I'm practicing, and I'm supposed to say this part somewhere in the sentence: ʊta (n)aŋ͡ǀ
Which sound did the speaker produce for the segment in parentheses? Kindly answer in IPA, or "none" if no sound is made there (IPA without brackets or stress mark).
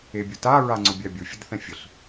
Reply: ɹ